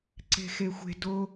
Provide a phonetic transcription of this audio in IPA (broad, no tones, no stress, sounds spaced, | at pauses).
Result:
ǀ e̤ x e xʷ e̤ d o